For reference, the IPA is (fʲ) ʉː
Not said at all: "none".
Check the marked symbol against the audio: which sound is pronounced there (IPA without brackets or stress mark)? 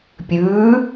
pʲ